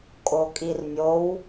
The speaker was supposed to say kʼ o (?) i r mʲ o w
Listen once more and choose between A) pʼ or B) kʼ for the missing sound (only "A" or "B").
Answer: B